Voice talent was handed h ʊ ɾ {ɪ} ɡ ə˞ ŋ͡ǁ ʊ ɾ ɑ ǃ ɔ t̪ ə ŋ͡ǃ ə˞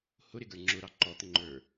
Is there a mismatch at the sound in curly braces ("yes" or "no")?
no